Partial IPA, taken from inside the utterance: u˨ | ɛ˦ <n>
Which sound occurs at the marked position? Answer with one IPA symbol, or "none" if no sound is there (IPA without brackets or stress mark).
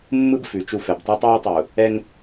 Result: ŋ